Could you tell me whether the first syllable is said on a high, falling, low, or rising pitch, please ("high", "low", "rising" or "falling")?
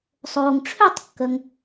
low